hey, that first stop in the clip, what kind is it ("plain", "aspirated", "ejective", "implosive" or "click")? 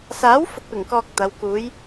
plain